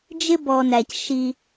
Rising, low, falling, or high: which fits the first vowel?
high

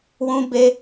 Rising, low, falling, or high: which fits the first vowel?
high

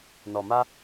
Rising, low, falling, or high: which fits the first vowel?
low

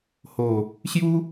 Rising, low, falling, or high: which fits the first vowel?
low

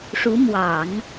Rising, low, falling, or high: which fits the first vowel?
rising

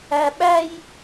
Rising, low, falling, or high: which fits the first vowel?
high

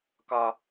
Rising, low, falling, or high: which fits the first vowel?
high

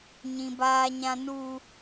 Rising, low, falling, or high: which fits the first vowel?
high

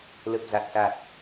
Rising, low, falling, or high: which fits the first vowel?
low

